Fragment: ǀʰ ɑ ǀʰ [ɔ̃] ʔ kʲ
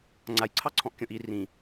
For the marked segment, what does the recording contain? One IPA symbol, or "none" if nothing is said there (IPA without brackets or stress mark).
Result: ɔ̃